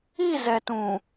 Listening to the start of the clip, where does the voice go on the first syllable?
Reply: falling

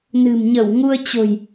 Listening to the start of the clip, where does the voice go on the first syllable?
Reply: low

